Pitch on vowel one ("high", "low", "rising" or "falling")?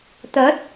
rising